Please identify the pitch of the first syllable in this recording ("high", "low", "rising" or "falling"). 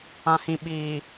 low